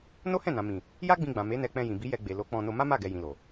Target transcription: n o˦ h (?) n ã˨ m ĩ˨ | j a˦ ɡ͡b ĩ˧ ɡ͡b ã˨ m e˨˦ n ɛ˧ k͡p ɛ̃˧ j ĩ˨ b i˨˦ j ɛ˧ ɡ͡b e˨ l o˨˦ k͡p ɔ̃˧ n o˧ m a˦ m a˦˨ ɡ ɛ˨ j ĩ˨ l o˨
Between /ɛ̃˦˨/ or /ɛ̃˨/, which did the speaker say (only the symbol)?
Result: ɛ̃˦˨